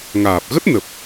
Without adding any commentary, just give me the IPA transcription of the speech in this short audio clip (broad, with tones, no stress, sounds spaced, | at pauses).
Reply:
ŋ aː˨˩ p̚ ɣ ə˦˥ t̚ n ə˨˩ p̚